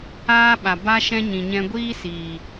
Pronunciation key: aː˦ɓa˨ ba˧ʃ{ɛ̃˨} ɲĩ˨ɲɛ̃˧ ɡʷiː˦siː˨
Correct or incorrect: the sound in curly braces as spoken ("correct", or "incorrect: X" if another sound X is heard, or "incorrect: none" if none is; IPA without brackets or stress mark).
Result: incorrect: ɛ̃˧